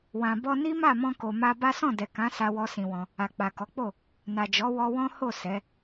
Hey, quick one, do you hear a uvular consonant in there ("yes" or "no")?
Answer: no